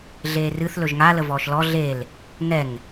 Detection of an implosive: absent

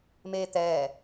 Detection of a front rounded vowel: absent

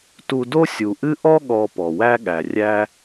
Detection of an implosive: present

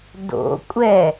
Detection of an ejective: present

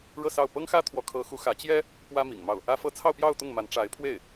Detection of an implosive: absent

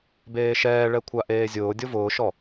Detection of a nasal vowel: absent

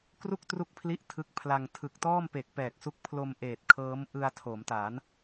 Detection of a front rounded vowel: absent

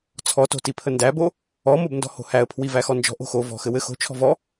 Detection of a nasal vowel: absent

